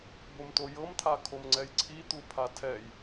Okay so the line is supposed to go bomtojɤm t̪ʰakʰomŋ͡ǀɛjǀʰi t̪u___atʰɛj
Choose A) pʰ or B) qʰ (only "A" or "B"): A